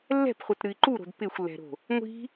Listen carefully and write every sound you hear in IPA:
lː ɛ̤ p χʷ ʌ t ɾ ɨ i̯ ǃ u ɾ o̤ d p ɪ xʷ lː ɛ̤ ɾ o̤ | ŋʷ i̤

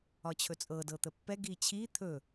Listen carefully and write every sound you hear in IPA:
ɒ t͡ɕʰ ɵ t͡sʼ ɤ d ɤ t̪ ə pː ɛ ɡ i t͡ɕʰ i t̪ʰ ɵ

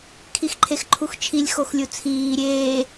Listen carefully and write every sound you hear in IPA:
kʰ i x ǃʰ e x ǃʰ u x t͡ʃʰ i lʲ x o x lʲ u t͡sʰ iː ɾʲ eː

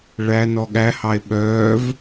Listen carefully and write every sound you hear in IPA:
ɭ æ n ɔ ɠ æ h ɑ e̯ ɓ œː v

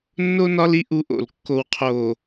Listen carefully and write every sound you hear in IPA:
nː o˦ n ɒ˦ l i˦ ʔ u˦ ʔ o̰˨ l kː o˨ w qʰ o˨

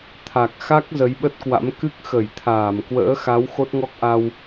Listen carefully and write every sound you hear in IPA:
t̪ʰ a˨˩ k̚ x a˦˥ k̚ z ə˨˦ j ɓ ə˦˥ t̚ k w a̰˧˥ m k ɨ˦˥ k̚ x ə˧˩ j t̪ʰ aː˧˩ m k w ə̰ː˧˥ x a˨˦ w x o˦˥ t̚ ŋ ɔ˦˥ k̚ ʔ a˧ w

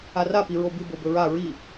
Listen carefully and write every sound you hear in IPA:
a r a p i ɹ o b ɨ b o b ɵ ɹ a ɹ i

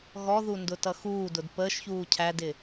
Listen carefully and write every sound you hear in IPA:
ɣ ɔ ð u n d ʊ t ʌ x uː d ʊ d p əː ʃ ç uː cʰ æ d ɪ

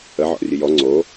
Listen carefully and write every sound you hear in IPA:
ə ʕ ɔ̰ rʲ ɨ j ɔ ŋ͡ǀ o

